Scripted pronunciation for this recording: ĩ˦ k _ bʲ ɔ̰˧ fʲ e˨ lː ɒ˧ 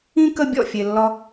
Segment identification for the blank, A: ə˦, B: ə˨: A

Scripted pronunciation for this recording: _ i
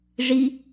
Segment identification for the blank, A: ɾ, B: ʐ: B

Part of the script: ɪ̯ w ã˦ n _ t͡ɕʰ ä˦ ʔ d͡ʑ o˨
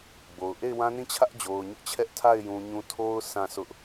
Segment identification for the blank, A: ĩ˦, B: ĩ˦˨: B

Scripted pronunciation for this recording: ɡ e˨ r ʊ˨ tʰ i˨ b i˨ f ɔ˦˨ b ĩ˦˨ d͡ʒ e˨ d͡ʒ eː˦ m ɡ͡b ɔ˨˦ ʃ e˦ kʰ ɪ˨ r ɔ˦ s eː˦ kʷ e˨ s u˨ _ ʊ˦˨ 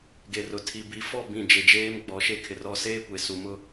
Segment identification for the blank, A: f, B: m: B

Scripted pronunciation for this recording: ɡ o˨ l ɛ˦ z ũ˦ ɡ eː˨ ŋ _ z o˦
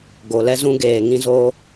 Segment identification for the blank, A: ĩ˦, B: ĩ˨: A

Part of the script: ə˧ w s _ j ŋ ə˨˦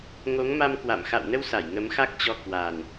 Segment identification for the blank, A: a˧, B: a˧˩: B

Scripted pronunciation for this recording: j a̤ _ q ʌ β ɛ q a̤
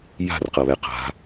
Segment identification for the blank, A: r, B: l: A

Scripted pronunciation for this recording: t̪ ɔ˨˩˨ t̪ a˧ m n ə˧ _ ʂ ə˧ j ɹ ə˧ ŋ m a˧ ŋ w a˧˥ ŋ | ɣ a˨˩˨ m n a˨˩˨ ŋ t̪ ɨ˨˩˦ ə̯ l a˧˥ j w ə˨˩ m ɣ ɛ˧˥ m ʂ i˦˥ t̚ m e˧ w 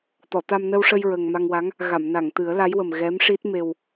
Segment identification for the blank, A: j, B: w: B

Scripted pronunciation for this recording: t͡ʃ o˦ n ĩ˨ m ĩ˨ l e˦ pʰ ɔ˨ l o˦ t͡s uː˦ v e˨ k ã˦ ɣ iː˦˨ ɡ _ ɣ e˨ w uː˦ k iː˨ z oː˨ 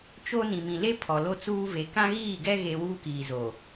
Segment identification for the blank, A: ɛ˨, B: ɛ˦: B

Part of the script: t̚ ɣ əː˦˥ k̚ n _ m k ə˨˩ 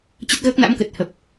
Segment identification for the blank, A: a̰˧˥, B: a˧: A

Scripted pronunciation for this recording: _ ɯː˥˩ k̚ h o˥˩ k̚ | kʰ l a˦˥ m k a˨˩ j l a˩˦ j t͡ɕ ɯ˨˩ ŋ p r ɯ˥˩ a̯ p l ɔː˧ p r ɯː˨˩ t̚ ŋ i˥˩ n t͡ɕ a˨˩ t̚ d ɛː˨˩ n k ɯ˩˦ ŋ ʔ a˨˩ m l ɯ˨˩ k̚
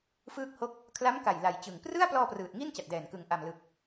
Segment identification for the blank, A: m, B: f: B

